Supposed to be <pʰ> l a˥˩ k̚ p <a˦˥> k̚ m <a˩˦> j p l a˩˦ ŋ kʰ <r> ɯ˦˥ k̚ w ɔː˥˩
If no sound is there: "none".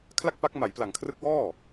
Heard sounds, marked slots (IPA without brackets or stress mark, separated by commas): kʰ, a˦˥, a˩˦, r